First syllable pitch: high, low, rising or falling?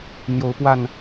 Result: rising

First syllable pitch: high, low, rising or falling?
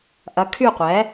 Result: rising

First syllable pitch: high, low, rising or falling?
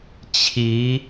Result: rising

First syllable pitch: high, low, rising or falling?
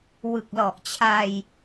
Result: low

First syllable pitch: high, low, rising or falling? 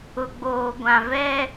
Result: low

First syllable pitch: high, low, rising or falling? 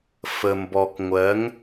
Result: low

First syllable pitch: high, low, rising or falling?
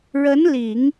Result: rising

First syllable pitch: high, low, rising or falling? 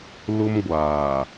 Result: high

